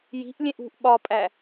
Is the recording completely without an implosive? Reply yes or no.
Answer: no